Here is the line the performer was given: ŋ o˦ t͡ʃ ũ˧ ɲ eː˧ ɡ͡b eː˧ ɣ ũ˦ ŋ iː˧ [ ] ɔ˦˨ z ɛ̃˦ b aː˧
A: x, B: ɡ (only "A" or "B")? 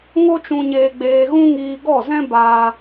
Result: B